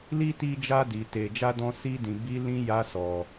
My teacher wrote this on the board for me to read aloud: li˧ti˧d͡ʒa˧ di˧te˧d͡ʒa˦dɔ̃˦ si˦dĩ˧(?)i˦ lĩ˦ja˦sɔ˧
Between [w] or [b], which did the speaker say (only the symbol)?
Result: b